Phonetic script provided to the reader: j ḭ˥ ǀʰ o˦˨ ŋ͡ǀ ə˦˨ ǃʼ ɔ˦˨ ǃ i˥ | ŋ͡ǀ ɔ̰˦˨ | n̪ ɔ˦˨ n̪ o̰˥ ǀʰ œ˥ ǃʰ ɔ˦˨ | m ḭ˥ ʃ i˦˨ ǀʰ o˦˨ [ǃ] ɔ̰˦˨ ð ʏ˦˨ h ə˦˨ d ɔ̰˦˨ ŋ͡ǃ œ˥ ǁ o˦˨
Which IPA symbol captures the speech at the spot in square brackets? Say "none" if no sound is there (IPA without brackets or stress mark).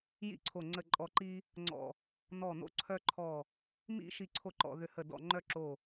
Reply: ǃ